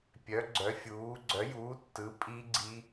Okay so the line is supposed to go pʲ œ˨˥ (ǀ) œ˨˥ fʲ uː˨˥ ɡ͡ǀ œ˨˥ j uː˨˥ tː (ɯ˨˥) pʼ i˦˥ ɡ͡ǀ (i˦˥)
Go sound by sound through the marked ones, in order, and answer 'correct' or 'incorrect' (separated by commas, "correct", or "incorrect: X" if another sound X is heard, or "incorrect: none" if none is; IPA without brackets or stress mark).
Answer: incorrect: ɡ͡ǀ, correct, correct